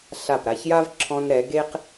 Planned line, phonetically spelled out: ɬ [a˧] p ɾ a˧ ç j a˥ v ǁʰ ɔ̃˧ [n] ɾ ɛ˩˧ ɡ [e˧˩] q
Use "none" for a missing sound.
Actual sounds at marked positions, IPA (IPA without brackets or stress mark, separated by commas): a˧˩, n, e˥